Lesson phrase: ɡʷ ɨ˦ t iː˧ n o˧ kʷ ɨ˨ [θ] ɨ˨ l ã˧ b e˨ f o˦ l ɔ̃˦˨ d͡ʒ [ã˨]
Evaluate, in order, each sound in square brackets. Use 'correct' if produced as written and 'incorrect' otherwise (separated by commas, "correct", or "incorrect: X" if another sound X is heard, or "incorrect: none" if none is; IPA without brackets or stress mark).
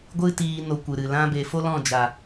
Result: incorrect: ɾ, incorrect: a˨